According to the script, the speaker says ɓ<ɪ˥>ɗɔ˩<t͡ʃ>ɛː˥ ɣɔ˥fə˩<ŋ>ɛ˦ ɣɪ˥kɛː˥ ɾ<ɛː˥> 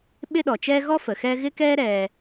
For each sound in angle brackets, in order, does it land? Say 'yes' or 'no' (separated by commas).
yes, yes, no, no